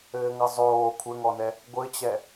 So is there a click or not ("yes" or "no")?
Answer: no